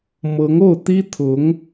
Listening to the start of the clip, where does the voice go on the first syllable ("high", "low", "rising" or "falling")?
rising